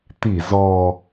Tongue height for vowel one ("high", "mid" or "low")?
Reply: high